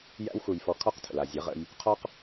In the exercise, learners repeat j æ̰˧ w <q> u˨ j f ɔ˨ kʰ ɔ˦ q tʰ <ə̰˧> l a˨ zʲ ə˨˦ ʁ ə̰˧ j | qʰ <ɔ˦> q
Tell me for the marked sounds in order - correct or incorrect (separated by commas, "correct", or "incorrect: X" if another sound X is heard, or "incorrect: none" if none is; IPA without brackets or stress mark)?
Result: incorrect: x, incorrect: ə̰˨, correct